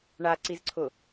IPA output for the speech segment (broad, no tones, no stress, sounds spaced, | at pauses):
ɳ a ǀ i z ǀʰ ʊ